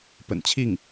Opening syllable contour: low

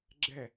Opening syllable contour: falling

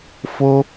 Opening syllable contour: high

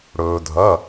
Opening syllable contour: low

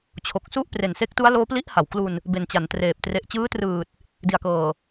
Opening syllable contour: low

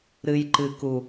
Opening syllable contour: low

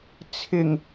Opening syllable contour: low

